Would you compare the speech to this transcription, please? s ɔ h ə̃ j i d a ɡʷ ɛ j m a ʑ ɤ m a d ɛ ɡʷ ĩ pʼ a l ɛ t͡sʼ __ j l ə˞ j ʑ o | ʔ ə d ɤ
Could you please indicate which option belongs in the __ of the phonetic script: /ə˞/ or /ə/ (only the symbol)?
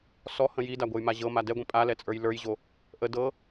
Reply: ə˞